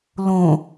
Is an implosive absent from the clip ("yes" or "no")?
yes